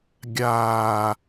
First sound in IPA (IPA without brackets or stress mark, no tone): ɡʲ